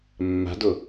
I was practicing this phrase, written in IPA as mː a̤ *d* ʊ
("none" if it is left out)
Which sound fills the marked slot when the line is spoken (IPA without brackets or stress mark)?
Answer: d